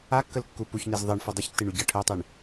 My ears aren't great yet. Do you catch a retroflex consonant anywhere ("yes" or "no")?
yes